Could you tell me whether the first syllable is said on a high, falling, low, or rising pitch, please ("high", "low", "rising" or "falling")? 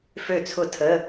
falling